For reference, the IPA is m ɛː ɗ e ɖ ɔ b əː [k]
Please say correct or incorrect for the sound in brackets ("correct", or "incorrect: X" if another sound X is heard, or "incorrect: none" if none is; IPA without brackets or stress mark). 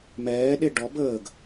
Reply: incorrect: ɡ